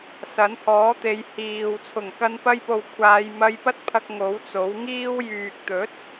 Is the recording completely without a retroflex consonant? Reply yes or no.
yes